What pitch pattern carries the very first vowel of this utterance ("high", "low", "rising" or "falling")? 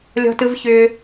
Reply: high